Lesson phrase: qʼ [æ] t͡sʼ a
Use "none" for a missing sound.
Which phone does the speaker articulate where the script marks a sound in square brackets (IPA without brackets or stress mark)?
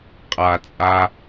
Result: a